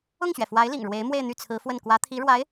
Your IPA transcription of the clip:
ʊ˥˩ ŋ ɕ ɥ ɛ˩ f w a˧˥ ɪ̯ l ḭ˨˩ ŋ ɻ w e˧˥ ɪ̯ m w e˥˧ ɪ̯ n̪ y˥˩ t͡sʰ ɹ̩˧˥ f w ə˥˩ n k w ä˧˥ t̪ʰ i˧˥ ɻ w a˧˥ ɪ̯

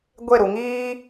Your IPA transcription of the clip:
ɡʷ e˦˨ ɾ u˨ ŋ iː˦

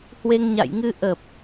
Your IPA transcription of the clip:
h w e˧ ŋ ɲ a̰˧˨ j ŋ ɨ˧ ʔ ə˨˩ p̚

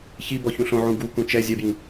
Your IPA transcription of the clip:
ç i b ɔ ç ũ ɬ õ ʕ ũ ɡ u k ũ t͡ʃ ɛ zʲ ɛ b j ĩ

